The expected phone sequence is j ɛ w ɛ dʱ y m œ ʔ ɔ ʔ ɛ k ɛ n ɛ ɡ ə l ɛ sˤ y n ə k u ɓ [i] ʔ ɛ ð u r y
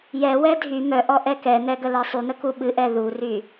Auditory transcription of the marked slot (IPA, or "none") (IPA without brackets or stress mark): ɨ